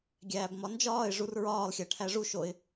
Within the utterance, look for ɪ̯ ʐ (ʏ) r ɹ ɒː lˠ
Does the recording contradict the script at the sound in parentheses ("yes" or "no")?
yes